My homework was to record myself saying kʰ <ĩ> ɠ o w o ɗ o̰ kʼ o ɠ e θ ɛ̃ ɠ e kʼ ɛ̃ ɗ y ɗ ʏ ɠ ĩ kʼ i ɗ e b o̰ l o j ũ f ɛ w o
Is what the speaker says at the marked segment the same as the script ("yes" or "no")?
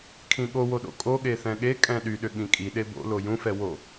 yes